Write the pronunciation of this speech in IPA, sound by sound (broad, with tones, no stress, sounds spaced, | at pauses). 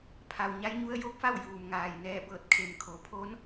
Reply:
pʰ a˩ w ɲ a˧˥ j ɲ u˧˥ ə̯ j o˧˥ k̚ f a˥˨ w j uː˩ m ŋ aː˧˩ j n ɛː˧˩ b ɤː˧˩ t̚ kʰ e˩ m kʰ o˩ pʰ o˧˥ n